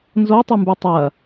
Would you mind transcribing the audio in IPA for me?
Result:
n z o tˤ ɨ m b ʉ tˤ ɐ

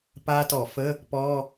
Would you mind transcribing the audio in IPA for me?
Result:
p a˦˥ t ɔ˧˩˧ f ə˧˥˧ | p ɔ˧˥˧

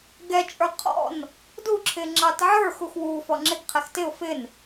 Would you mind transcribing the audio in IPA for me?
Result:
ɡ ɛ t͡ʃʼ ə˞ qʰ ɔ̰ n | d u ǁʰ ɪ ŋ͡ǁ ɑ t ʕ ə˞ x u x w u f ɔ ŋ͡ǁ ɪ ɡ qʰ ɛ x t ɪ ʊ̯ f ɪ n

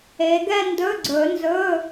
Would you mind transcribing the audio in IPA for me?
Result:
e˨˦ ɡ ɛ˥˧ n d ɵ˧˥˧ ɡ͡ǀ ɵ˨˩˦ n z ɵ˧˥˧

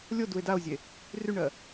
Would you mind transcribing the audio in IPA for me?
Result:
lʲ o d u e̯ d a o̯ zʲ e | r y ɳ ɜ

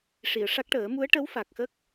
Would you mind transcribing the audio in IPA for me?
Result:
ʂ i˨˩˨ ə̯ ʂ a˦˥ k̚ ʈ əː˨˩˦ m u˧˥ ə̯ ʈ ə˧˥ w f a˨˩ k̚ x ə˦˥ k̚

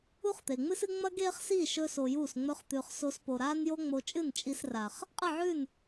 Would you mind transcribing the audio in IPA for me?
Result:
u˦ χ t̪ e˨ ŋ͡m ɨ˦ s ɨ˦ ŋ͡m ɐ˦ ɡ eː˦ χ s iː˦˨ ʃ ɵ˧ s o˧ j uː˦˨ s ŋ͡m ɵ˦ χ t̪ ʉː˧ χ s o˧ s p o˨ ɾ aː˦ n j o˦ ŋ͡m o˧ t͡ʃʼ ɨ˦˨ n t͡ʃʼ i˧ s r a˨ χ | qʼ ɨ˦˨ ʕ ʉ˦˨ n

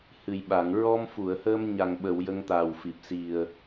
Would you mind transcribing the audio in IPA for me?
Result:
h ɨ˨˩ j ɓ a˨˩˨ ŋ ɹ ɔ˧ m f u˨˩˨ ə̯ h əː˧ m ɲ a˨˩ ŋ ɓ ə˨˩˨ w j ə˧ ŋ t̪ aː˨˩ w f i˨˩ p̚ s i˨˩ ə̯

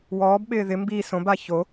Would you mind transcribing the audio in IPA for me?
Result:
w ɔː b ɓ ɪː ð ɪ m b i s õ b a ç o

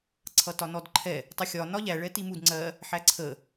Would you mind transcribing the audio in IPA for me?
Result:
ǀʰ ʌ t ɒ n ɔ d ǃʰ ɛ | tˤ ə xʲ ɒ n ɒ ʎ æ ɭ ɛ t i m u d ŋ͡ǀ ɜ | ħ æ ǀʰ ə

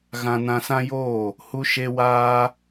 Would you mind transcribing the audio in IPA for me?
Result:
ɣ ã˧ n ã˧ s ã˦ j oː˦˨ | h u˧ ʃ e˧ w aː˧

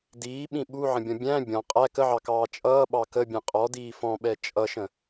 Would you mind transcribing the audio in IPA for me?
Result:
d iː ɓ ĩ ɓ u ʕ ə̃ bʲ ɔ̃ bʲ æ̃ bʲ ɔ̃ qʼ æ k ə ʕ ɑ k ɑː t͡ʃʼ ʌː ɓ ɑ k ə bʲ ɛ̃ qʼ ɔ d iː f ɔ̃ ɓ ɛ t͡ʃʼ ʌ ʃ ə̃

